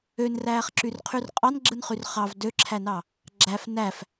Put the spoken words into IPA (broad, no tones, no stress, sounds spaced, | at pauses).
ø n r æː χ ǁ y r qʰ y r qʼ ɑ n ɡ͡ǁ ɯ n χ y r χ ɑ v d ø ǁʰ æ n ɑ | ɡ͡ǁ æ f n æ f